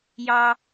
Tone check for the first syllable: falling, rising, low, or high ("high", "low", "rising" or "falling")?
high